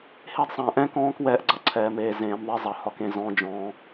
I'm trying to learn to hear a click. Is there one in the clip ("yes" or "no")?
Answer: yes